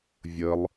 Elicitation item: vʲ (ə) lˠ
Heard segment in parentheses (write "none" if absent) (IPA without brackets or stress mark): ə